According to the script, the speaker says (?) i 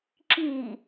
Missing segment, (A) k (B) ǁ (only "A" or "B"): B